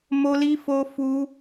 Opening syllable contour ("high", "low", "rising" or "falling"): high